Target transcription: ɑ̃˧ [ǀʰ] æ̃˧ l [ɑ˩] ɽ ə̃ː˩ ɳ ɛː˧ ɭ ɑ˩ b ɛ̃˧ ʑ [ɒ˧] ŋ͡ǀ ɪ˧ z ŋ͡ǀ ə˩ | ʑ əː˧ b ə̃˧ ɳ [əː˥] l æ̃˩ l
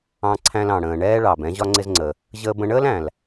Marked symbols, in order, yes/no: yes, no, yes, yes

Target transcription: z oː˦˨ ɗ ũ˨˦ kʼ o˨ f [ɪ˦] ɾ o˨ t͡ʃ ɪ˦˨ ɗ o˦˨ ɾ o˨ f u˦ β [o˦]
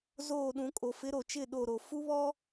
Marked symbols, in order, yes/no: no, no

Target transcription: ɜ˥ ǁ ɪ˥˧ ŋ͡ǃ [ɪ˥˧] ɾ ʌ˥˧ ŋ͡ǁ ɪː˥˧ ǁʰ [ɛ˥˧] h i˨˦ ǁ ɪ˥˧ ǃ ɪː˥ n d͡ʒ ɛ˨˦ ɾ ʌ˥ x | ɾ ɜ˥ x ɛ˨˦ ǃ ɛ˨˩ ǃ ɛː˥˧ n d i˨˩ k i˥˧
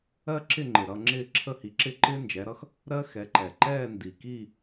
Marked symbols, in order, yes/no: no, no

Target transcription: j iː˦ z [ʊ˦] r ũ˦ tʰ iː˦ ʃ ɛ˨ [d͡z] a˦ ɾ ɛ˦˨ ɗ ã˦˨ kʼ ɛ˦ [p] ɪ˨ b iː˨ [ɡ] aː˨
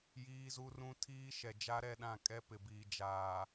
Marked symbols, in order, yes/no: no, no, yes, no

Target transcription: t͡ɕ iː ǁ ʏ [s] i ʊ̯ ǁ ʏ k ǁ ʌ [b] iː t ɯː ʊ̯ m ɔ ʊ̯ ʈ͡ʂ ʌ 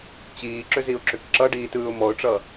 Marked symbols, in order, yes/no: no, no

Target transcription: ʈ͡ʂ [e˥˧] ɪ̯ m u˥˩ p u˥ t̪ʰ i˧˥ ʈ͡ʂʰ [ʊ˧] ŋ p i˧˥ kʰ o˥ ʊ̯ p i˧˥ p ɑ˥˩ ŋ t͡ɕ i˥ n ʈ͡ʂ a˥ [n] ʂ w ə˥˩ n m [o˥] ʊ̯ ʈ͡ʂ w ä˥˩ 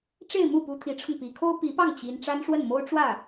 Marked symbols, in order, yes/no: yes, yes, yes, yes

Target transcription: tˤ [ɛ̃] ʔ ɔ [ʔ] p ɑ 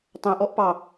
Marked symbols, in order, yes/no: yes, yes

